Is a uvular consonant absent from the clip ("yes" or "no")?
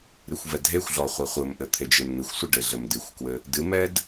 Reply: no